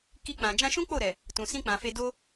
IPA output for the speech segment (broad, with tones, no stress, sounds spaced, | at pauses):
k i˧ k͡p ã˨ d͡ʒ ã˧ ʃ ũ˦ k͡p o˦˨ ɾ ɛ˨ | t ũ˨ s ĩ˧ k͡p ã˨ f e˧ d o˦